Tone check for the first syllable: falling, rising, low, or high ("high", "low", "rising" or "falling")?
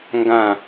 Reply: falling